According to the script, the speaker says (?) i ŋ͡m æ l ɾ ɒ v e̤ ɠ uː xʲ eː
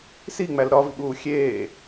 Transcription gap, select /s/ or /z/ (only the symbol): s